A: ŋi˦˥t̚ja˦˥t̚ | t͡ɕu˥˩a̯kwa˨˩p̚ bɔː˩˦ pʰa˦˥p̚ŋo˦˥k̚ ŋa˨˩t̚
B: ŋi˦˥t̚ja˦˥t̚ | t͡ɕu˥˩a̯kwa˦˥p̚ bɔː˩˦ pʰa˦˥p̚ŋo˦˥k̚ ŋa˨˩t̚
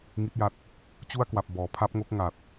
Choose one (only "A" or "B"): A